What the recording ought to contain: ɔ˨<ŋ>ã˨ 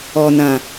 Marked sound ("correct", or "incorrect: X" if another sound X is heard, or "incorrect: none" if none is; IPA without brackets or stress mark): incorrect: n